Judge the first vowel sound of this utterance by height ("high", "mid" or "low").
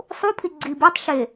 high